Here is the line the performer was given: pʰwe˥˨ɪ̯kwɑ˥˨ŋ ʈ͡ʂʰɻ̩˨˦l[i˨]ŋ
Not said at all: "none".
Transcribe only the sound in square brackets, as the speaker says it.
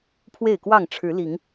i˨˦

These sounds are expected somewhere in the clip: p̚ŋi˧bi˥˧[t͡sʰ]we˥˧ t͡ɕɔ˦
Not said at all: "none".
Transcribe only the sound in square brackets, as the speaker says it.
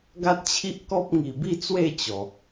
t͡s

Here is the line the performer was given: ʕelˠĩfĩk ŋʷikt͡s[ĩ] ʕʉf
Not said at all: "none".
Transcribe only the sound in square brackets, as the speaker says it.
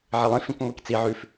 i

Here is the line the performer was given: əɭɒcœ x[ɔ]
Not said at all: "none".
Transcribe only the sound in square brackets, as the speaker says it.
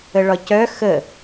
ə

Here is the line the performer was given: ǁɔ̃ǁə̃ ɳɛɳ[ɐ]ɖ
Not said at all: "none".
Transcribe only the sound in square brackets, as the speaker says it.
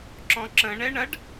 ɐ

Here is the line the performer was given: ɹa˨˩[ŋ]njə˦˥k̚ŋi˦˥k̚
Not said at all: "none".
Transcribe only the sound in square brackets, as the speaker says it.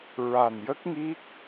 none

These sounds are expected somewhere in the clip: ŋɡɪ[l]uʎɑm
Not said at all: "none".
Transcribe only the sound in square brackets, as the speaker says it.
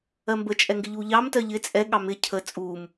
ʎ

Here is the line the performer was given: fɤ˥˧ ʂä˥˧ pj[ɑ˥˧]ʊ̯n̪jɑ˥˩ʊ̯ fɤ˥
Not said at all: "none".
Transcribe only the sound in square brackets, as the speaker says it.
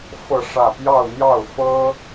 ɑ˥˧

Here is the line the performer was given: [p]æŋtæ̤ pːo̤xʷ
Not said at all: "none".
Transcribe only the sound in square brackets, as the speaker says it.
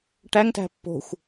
ʈ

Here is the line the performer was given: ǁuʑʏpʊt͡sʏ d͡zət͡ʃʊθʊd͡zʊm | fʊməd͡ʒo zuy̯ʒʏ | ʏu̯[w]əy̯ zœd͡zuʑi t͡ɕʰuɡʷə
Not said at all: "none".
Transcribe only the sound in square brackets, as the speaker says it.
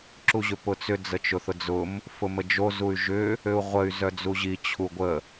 ʁʷ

